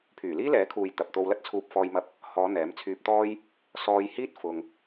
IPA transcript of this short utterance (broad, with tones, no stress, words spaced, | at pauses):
pʰyː˨˩liː˥lɛː˨˥kʰuː˨j t̪ɐ˨p̚t̪o˧wlɐ˥t̚t͡sʰuː˧p̚ fɔː˧jmɐ˧p̚ | hɔː˨˧ n̪ɛː˨˥mt͡sʰyː˧p̚t̪ɔː˥j | sɔː˧jhiː˥t̚ fʊ˧ŋ